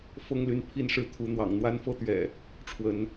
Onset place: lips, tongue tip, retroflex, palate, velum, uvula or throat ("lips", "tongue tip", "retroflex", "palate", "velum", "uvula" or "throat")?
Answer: lips